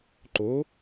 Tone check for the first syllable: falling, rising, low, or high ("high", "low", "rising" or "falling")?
rising